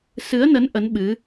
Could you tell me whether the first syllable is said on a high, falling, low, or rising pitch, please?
rising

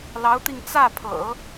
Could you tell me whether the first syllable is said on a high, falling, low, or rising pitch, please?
rising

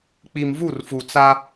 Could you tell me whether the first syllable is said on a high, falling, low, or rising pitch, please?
low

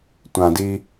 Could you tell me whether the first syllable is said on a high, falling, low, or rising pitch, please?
low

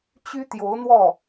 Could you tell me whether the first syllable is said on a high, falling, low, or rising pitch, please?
high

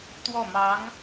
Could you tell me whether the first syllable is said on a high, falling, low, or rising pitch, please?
falling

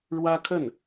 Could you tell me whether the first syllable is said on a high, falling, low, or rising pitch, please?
high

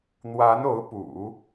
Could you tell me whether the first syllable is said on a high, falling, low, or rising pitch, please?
rising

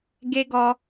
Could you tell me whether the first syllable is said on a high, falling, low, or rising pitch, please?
high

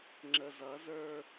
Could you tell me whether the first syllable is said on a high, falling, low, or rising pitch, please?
low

